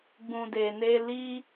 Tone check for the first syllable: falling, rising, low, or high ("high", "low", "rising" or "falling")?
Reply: low